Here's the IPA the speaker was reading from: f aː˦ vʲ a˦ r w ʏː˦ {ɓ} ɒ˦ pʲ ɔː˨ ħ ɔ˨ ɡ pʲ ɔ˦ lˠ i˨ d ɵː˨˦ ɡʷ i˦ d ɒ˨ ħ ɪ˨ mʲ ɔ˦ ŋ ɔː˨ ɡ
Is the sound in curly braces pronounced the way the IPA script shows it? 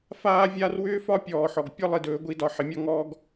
no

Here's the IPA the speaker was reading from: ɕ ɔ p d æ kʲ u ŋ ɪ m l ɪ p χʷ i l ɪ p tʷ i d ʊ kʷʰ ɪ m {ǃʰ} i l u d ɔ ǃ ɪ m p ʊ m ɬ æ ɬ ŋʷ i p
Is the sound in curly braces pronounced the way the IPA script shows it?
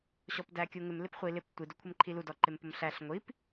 yes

